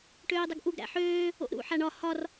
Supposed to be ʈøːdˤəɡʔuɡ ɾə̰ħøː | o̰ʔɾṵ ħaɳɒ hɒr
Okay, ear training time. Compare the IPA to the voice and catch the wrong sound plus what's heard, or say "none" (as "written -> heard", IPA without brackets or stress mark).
ə̰ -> æ̰